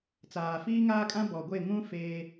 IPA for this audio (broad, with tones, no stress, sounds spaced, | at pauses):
t͡s aː˨ f iː˦ ŋ aː˦ kʼ ã˦ b ɔ˨ ɡʷ e˦˨ ŋ ũ˦ f eː˦